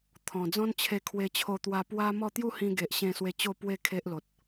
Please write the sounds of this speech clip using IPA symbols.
t̪ʰɔ̃˨˩d͡zɔ̃˦n t͡ɕʰe˧kʰwe˧t͡ɕʰo˧t̪wa˧ pwa˦mɔ˥˧ t̪ju˥˧hĩ˧ɡe˨ʔ ɕẽ˥˧swe˦ t͡ɕo˥˧pwe˥˧ kʰe˦ʔlo˨t̚

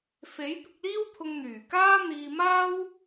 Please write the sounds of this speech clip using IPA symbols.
fe˨˥jpɪ˧k̚liː˥wt̪ʰʊ˧ŋ n̪yː˨˩kaː˥n̪iː˧maː˥w

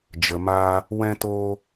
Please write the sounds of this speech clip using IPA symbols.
d͡ʒə˨maː˧ | wɛ̃˧toː˧

